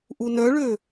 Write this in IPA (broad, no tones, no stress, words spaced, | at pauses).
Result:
ʔunœɭø